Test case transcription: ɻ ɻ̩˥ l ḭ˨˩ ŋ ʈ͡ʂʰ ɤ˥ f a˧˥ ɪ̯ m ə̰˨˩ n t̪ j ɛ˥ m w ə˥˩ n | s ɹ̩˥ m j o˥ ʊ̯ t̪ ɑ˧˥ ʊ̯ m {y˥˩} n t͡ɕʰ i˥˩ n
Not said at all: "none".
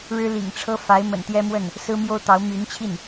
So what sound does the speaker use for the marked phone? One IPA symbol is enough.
y˧˥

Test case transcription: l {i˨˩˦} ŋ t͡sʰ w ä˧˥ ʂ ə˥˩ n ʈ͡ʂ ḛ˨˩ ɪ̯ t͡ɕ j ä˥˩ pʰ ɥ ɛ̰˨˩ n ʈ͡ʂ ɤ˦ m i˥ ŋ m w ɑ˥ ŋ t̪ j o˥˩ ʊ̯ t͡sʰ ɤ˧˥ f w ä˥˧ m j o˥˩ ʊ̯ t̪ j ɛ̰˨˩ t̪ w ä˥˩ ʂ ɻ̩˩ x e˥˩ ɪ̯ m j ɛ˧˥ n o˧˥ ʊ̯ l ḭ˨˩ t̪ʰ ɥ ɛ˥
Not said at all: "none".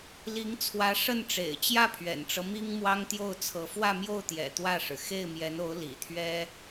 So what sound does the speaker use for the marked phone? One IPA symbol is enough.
i˧˥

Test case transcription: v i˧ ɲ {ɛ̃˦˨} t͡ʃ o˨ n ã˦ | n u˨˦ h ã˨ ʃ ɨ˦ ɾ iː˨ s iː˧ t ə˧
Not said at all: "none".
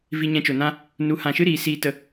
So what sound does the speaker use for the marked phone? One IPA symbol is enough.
ɛ̃˧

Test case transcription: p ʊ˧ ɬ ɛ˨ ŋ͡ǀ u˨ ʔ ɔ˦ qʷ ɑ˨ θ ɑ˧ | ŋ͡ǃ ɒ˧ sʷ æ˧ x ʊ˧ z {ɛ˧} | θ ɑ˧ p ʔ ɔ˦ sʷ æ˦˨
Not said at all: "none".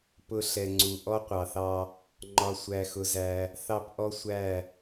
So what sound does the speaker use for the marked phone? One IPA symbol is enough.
æ˧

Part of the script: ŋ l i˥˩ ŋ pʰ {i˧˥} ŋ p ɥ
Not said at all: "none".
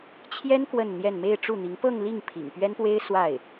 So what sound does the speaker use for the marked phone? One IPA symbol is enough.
ḭ˨˩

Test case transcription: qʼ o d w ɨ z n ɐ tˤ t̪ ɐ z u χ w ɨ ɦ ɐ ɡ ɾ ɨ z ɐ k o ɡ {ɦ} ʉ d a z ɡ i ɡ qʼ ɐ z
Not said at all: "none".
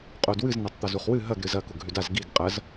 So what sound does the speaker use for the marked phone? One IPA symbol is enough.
ɦ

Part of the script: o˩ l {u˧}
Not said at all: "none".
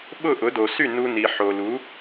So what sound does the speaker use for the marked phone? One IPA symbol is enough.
u˩˥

